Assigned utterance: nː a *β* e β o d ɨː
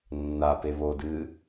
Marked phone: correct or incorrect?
incorrect